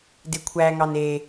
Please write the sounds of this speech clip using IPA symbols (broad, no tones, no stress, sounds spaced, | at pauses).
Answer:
d e kʷʰ æ ŋ ɑ n e